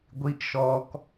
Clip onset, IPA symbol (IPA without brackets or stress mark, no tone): ɡʷ